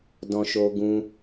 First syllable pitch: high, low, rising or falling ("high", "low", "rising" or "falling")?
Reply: high